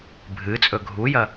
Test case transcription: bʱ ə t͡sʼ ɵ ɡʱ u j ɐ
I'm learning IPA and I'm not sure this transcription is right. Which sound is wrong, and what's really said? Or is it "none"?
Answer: ə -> ɨ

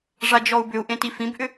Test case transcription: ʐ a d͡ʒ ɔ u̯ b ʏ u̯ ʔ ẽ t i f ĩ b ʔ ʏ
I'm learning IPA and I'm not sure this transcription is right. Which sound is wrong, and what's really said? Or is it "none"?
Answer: none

